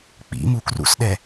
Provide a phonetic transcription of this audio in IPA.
k͡p ḭ m u k r ṵ s ɗ ɛ

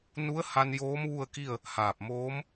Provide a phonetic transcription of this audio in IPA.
n u˧˥ ə̯ h a˧ n j oː˧˥ m ʋ u˥˨ ə̯ k i˥˨ ə̯ | h aː˧˩ p̚ m oː˧˥ m

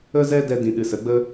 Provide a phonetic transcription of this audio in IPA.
ə˦ z ɛ˦ d ɛ˧ d ĩ˨ ɗ ɨ˨ s ə˨˦ ɡ͡b ə˦

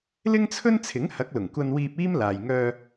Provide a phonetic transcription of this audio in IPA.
l ɪ˥ ŋ t͡sʰ ɵ˥ n t͡sʰ ɪ˨˥ ŋ h ɐ˨˥ k̚ l ʊ˨˩ ŋ kʷ ɐ˧ n w iː˧ p̚ iː˥ m l aː˨ j ŋ œː˧

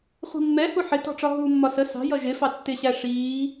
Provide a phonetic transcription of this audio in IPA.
χʷ i̤ mː ɛ h u ħ ɪ t ɔ̤ ʈ͡ʂ ɒ ɦ uː mː ɒ s ə s ɑ̤ j ʌ ʒ ɪ f ɑ tː ɪ ɕ æ ʂ iː

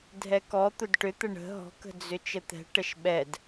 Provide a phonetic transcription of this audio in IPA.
dʱ ɛ k ɔ t̪ ʊ d ʈ ʏ t̪ ə ɳ ə̤ ɦ ɔ̤ k ə̤ d͡z ʏ t͡ʃ ə t̪ ɛ̤ ʈ ə ʃ ɓ ɛ d

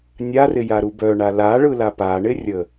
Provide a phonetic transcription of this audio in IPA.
nʲ a r ɪ j a ɾ u b œ ɳ a l a ɭ ɯ l a p a ɳ ɪ rʲ ə

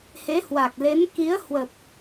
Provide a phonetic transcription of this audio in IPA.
h e˨˦ h w a˨˩ k̚ l e˨˦ n k i˨˦ ə̯ h w ə˨˩ p̚

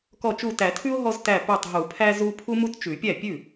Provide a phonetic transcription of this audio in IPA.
k ɔ˧˩ t͡ʃ u˧˩ t æ˨˩˦ tʰ ʉ˦ ʊ̯ ɦ ɔ˦ z t æ˧˩ p ʉ˧˩ tˤ ɦ u˨˩˦ pʰ æ˦ z u˦ pʰ u˦ m u˦ t t͡ʃ ʉ˨˩˦ pʲ æ˥˩ pʲ ʉ˥˩

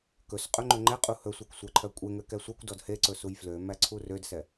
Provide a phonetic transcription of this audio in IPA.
k ɵ s qʼ ɵ ŋ͡ǃ ɵ ŋ͡ǃ ɛ qʼ u h ɵ sʷ æ kʷ sʷ æ ǃʰ œ kʷʼ e ŋ ø k ɛ sʷ e kʷ d ɔ d h e ǀ ɵ s u j f l ø m æ ǀʰ u r ø d s ɛ

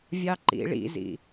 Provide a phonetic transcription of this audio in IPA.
vʲ ɑ ǃ ḭ ɭ ḭ z ḭ

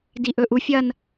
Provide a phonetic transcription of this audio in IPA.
d i ʔ ɵ ʔ u fʲ ɐ n

